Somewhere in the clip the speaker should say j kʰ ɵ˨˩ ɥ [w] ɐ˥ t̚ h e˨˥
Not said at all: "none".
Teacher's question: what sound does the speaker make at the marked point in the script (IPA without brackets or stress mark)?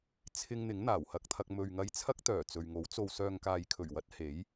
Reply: w